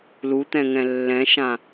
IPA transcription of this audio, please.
lut̪ɛ̃ŋɛ̃ lːɛ̃ʃã

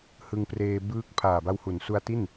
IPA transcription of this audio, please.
hɯ˧ŋpreː˧ bɯː˦˥k̚ pʰaː˨˩ba˧whu˩˦n su˦˥a̯ti˥˩n

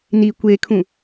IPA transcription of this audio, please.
ni kʷekʰũ

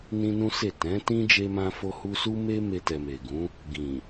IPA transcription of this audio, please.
nĩ˦nũ˦se˦˨ tɛ̃˨˦tĩ˦ d͡ʒe˦mã˦fo˦hu˦ su˦me˦me˧tɛ˨ me˨ɡũ˨˦ | ɡĩ˨

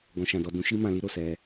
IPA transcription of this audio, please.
ɡɔ̃˨ʃã˨dɔ˨ dũ˨˦ʃi˧mã˨li˧ ɾo˨sɛ˧

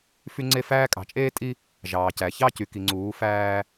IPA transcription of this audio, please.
fy˦ŋ͡ǀe˦fæː˦ kʼɑ̤˨t͡ʃʼeː˦tʼi˦ | ʒɑː˨cæ˨ çɑ˦ cy˨ki˨ŋ͡ǀuː˨˦ fæː˦

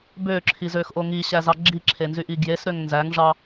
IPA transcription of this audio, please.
bøǁʰizøxʔo ŋiɕæzɑ ɡ͡ǁiǁʰenzyʔi ɡjesɾøŋ nzæŋʐɑ

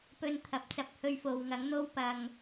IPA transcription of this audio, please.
pɵ˧nt̪ʰɐ˨p̚t͡sɐ˧p̚ hɵ˧ɥfo˨w ŋɐ˨˥ŋn̪o˥w pɐ˧ŋ

